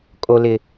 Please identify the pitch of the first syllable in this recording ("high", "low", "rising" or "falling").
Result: high